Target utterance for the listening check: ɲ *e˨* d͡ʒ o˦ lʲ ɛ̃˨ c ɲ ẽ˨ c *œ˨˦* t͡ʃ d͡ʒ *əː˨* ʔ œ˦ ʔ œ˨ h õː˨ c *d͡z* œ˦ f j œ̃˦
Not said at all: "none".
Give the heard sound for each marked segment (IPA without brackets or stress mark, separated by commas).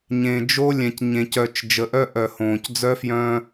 ẽ˨, œ˨, ə˨, d͡z